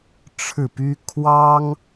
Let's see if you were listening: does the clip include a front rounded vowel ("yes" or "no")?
yes